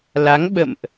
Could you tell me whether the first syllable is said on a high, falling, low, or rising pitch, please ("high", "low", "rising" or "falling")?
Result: rising